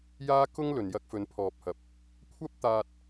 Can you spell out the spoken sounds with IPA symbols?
j aː˥ k ʊ˥ ŋ l ɵ˨ n j ɐ˧ k̚ f ɵ˨˧ n pʰ ɔː˨ p̚ h ɐ˨ p̚ | kʷʰ ɐ˥ p̚ t̪ aː˧ t̚

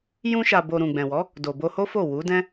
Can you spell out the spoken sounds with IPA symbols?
j ũ˧ ʃ a˨ b o˨ ɾ ũ˨ ɡ͡b ɛ̃˨ w ɔ˨˦ | d o˨ b o˧ h o˦ f o˦˨ w u˨˦ d ɛ̃˦

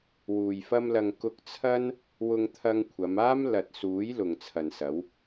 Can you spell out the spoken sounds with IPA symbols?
w uː˨ j f ɐ˥ m l ɐ˧ ŋ k ʊ˧ k̚ t͡sʰ ɐ˥ n | w ʊ˧ ŋ t̪ʰ ɐ˧ ŋ kʷʰ ɐ˨˧ m aː˥ m l ɐ˨ t̚ s uː˨˥ j l ʊ˨ ŋ t͡sʰ ɐ˨ n s ɐ˨˥ w

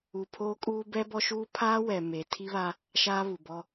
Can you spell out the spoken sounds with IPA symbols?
u˨ pʰ oː˦ kʼ uː˦ b ɛ˦ b ɔ˦ ʃ uː˦ pʰ aː˦ w ɛ˨ m eː˨ tʰ i˦ β a˦ | ʃ aː˦ β u˨ b ɔ˦

